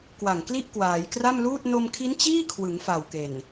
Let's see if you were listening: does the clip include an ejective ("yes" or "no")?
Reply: no